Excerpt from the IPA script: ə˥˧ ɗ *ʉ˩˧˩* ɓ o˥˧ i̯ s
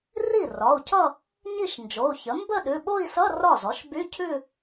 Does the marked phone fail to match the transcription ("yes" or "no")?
no